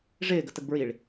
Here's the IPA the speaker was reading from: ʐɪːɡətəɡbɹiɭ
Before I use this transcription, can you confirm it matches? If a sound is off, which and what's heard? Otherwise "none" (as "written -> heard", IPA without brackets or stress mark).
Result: none